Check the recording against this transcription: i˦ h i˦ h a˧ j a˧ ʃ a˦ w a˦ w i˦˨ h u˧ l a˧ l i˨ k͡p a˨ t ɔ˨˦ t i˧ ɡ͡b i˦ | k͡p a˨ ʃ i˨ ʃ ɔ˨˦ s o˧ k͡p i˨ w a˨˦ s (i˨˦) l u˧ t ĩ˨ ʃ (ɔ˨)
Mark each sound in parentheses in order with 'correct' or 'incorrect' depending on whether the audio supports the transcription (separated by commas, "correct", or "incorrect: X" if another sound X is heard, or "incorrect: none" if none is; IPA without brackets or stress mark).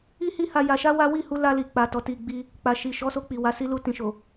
incorrect: i˦, incorrect: o˨